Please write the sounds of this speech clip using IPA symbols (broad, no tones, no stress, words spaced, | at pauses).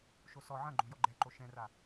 ʃosɔ ʕɐ̃ɡ͡ǃõ jɔɡ͡ǃɛǃo ʃɛ̃ra